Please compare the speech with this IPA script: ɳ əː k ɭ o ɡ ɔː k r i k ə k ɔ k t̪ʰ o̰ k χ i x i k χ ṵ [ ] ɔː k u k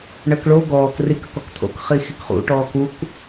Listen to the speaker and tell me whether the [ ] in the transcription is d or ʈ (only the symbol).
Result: ʈ